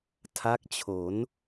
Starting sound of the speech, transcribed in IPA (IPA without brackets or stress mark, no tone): tʰ